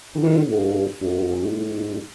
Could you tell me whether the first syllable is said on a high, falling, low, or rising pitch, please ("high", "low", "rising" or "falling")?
high